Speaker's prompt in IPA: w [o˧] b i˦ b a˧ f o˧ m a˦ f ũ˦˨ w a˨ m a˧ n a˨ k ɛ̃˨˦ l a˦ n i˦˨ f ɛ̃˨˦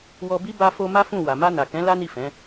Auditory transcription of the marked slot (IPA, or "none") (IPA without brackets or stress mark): ɔ˧